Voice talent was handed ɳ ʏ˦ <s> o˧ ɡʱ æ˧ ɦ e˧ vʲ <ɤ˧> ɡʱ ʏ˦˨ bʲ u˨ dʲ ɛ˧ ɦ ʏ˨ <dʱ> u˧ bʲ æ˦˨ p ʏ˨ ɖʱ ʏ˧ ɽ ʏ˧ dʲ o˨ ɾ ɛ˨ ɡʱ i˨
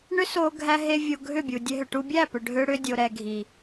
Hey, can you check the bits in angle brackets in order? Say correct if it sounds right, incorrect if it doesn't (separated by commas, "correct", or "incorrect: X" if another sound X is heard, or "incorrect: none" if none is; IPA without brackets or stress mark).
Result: correct, incorrect: o˧, incorrect: ʈ